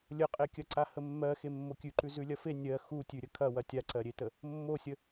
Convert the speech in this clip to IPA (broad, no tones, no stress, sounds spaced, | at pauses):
lʲ ə qʼ e kʲ ɐ ǀ a h ə mː ɜ x e mː o kʲ ʉ ǃ ʉ z ʉ lʲ ɐ f e nʲ ɜ x u tʲ ʉ ɾʲ ə kʰ ɐ w ɐ tʲ a ǀ ɜ ɾʲ e t ə | mː o sʲ ə